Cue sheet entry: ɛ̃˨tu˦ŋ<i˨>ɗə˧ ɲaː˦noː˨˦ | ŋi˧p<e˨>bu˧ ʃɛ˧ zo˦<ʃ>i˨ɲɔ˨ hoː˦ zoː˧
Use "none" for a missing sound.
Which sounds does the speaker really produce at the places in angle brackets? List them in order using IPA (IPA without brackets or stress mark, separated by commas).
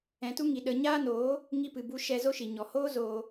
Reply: i˨, ɨ˨, ʃ